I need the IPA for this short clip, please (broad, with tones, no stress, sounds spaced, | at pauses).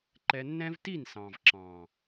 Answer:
ǃ ɛ˧ nː ɛ̃˦ v t i˦˨ n s ɑ̃˨ v ǁ ɑ̃˨